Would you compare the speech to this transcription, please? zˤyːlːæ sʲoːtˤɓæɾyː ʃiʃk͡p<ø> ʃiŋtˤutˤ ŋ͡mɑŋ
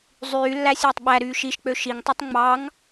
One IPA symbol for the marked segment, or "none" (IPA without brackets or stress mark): ø